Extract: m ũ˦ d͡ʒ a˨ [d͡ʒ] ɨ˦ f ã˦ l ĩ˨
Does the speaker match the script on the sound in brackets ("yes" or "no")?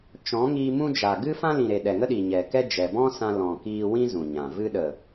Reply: no